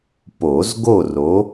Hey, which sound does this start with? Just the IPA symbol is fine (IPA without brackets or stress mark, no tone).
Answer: p